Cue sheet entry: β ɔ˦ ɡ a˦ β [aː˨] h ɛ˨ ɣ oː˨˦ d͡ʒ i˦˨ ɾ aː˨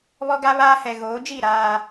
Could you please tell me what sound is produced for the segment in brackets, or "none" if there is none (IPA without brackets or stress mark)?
aː˦